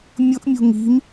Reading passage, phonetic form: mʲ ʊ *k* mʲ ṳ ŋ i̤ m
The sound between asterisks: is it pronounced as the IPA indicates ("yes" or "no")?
no